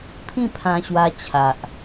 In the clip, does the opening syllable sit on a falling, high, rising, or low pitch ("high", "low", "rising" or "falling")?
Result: falling